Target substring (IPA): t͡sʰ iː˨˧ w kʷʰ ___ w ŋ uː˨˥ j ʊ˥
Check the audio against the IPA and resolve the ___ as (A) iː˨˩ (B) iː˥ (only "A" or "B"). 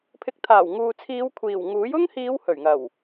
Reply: A